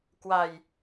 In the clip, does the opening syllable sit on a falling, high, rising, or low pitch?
low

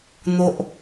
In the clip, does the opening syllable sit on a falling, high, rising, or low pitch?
high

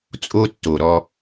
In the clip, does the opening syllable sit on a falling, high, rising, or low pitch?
high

